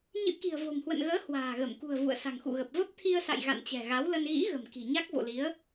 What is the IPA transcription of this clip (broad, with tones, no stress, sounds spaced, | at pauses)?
ɲ ɨ̰˧˥ k i̤˨˩ ə̯ v o̤˨˩ m h w ə̰˧˨ n ɣ əː˨˦ h w a̤ː˨˩ ɣ ə˧˩ m k ṳ˨˩ ə̯ v ṵ˧˨ ə̯ s a̤˨˩ ŋ x ṵ˧˨ ɣ ə˨˩ p̚ v ə˦˥ p̚ t̪ʰ i˧ ə̯ s a̰˧˨ j ɣ a̰˧˨ n t͡ɕ ɛ̤˨˩ ɣ a˨˦ w l ə˧ n ɣ ḭ˧˥ ɣ ə̤˨˩ m k i̤˨˩ ɲ a˦˥ k̚ v o̰˧˨ l i˨˦ ə̯